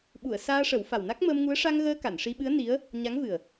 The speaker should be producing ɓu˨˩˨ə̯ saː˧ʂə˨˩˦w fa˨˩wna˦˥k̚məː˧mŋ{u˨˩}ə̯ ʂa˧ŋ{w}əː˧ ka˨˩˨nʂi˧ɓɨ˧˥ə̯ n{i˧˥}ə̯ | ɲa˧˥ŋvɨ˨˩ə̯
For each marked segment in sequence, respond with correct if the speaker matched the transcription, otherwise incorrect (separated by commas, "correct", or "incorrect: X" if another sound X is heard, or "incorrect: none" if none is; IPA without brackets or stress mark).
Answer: incorrect: u˧˥, incorrect: ɣ, correct